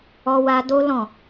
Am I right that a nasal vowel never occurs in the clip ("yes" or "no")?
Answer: no